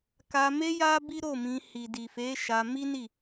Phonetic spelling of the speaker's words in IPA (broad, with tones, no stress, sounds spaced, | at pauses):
k a˧ m e˦ j a˦ b i˦ ɾ o˦˨ m ĩ˧ h i˨ d i˨ f e˨˦ ʃ a˧ m i˦ n i˦˨